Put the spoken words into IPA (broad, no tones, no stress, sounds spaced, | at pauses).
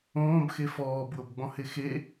õː b x e f ɔː b w ɤ b ɡ͡b ɔ̃ h e x e